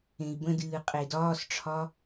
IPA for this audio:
ẽ i̯ b ə̃ d ɨː qʼ e d ɒː s ʈ͡ʂʰ ɒ

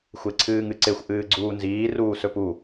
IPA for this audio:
xʷ e ǀʰ ɨː ŋ ɨ ǀ e xʷ ʔ ɨː ɡ͡ǀ uː n z iː r uː s ɵ p u

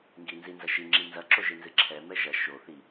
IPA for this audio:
ŋ ɡ i n z i n z ɐ ʃ i ŋ͡ǁ i n z ɐ ǁ o ʒ ɨ n z ɨ ǁʰ ɛ m ɛ ʒ ɐ ʃ o θ i

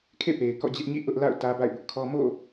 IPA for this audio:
kʰ ḛ˦˨ p e˨ ɪ̯ k ɔ̰˦˨ d͡ʑ ɪ˦ ʔ ɲ ḭ˦˨ ʔ ʊ˦ ʔ l a̰˦˨ ʊ̯ t ä˦ b a̰˦˨ ɪ̯ b ʊ˦ ʔ kʰ ɔ˦ m o̰˦˨

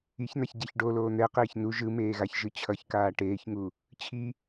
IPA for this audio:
i ç n̪ a ç ɟ ɛ ç ɖ o l oː n̪ ɛ q eː ç n u ʒ ɯ m eː ɣ a ç ʒ ɯ t͡ɕʰ ʌ ç k aː ʈ eː ç ŋ u | t͡ɕʰ i

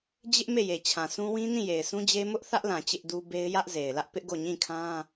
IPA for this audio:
d͡ʑ ɪ˦ ʔ m e˦˨ j e˨ t͡ɕʰ ã˨ s ũ˦ w ĩ˦ n ĩ˦˨ j e˨ ɪ̯ s ũ˦ d͡ʑ e˦ m ʊ˦ ʔ θ ä˦ ʔ l ã˨ t͡ɕ ɪ˦ ʔ d u˦ b e˦ ɪ̯ j ä˦ ʔ z e˨ ɪ̯ l ä˦ ʔ p ɪ˦ ʔ ɡ o˦˨ ɲ ĩ˦˨ kʰ ã˦

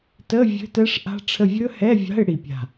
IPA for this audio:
t ə˧˥˧ vʲ ə̤˧˥˧ t ɛ˦˥ ʂ ʔ a̤˦˥ ʈ͡ʂʰ ə˦˨ vʲ ɵ˦˥ h ɛ˧˥˧ vʲ a̤˧˥˧ ɪ̯ ɽ i˦˨ pʲ a̤˦˨

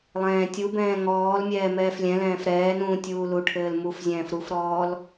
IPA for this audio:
lˠ ɛ̃ː tʲ u b ɛ̃ː ŋ ɔː l mʲ ɛː m ɛː f lʲ ɛ̃ l ɛ̃ː f ɾ ɛː n ũː tʲ uː l u ʈʰ ɘː l m u f zʲ ɛ̃ː f ɾ u f ɾ ɔː l

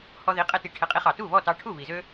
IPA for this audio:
h ɔ˧ ð i˩˥ qʼ ɛ˧ t i˩˥ ʈʰ ɛ˩˥ qʼ i˩˥ χ ɑ˩ t u˥˩ β ɔ˥˩ t ɑ˧ ʈʰ u˥˩ β i˩ z ø˥

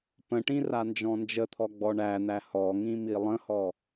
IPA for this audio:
p ə̃ ʈ ĩ r a n d͡ʒ ɔ̃ n d͡ʒ ə t̪ʰ ɔ ɡ͡b ɔ ɳ æ n̪ æ h ɔ ŋ ĩ m i lˠ ə̃ h ɔ

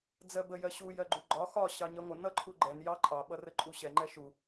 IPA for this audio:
d͡z ɜ b ə j ɜ ɕ u j ɜ ɡ͡ǃ u ɡ͡ǃ ɒ x ɒ ɕ ɑ ɲ ɜ ŋʷ ə n ʌ ǃʰ u ɡ͡ǃ ɛ n j ɑ ǃʼ ɑ ɓ ʌ r ə ǃʼ u ɕ ɛ ŋ͡ǃ ɛ ʃ u

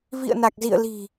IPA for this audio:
v ḭ˧˨ ə̯ n a˨˩ k̚ z ḭ˧˨ ə̯ l i̤˨˩

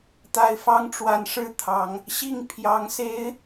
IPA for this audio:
t̪ a˦ ɪ̯ f ɑ˦ ŋ ʈ͡ʂ w a˨˦ n ʂ ɻ̩˥˨ t̪ʰ ɑ˨˦ ŋ | ɕ i˥˨ ŋ pʰ j ɑ˨˦ ŋ s e˨˦ ɪ̯

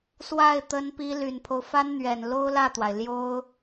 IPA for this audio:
s w a˥˩ ɪ̯ t̪ ə˥ n p i˥ l y˨˩ n pʰ o˦ ʊ̯ f a˥ n n̪ ɥ ɛ˨˩ n l o˥ ʊ̯ l ä˥˩ t̪ w a˩ ɪ̯ l j o˥ ʊ̯

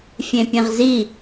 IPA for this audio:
fʲ ẽ pʲ ẽ ʁ z i

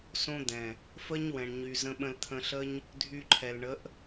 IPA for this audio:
s õ˦ d̪ ɛ̃˨ | f ə˦ ɲ w ɛ̃˨ ɳ ɲ y˨ z ə̃˧ ɓ ə̃˧ l t̪ʰ ə̃˧ ɬ ə˦ ɲ | dʱ y˧ ǃʰ ɛ˨ l ɳ ə˨˦ ʔ

